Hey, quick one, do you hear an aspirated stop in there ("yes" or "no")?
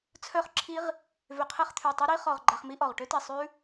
yes